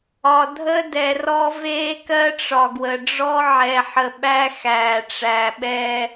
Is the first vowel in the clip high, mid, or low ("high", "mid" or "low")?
low